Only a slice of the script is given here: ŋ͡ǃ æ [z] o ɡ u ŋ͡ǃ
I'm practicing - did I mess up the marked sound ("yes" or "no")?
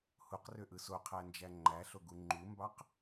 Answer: yes